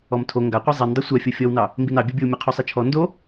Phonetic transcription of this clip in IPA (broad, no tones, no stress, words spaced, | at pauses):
ɔmtʰo ŋɡaqʷɛ zˤindˤɐ sʷafʲo fʲɔwnɑ | mbinɑbʲobʲow mʲɤqʰosˤit͡ʃʰɔ ndo